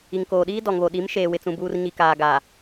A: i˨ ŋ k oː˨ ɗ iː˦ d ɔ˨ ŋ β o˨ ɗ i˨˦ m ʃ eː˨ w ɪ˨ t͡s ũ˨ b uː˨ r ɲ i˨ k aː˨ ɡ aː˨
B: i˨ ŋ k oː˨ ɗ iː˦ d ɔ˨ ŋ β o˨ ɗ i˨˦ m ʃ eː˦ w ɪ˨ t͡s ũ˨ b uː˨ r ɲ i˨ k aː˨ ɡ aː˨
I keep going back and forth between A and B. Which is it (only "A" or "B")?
A